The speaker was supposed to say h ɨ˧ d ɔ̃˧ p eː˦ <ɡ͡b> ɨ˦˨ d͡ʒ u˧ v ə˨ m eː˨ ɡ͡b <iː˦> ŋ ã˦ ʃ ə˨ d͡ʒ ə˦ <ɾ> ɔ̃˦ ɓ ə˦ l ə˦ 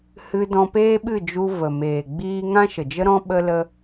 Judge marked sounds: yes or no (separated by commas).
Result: no, yes, yes